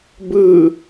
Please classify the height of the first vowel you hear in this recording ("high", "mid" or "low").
high